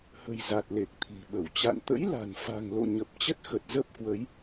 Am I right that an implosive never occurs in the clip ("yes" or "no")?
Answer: no